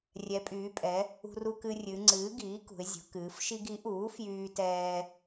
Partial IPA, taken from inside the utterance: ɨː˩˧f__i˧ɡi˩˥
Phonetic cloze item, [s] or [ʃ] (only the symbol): ʃ